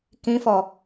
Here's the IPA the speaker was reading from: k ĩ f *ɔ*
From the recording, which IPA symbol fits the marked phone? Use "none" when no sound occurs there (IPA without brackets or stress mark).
ɔ